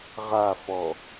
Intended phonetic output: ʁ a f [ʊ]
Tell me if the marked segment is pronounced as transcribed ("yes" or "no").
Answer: no